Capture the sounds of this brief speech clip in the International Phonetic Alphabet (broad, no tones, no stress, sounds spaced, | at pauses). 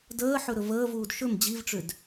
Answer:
d əː ħ ɵ ɾ ɵ v əː v uː d ʃ ɵ m d͡ʑ i v ʈ͡ʂ ʏ d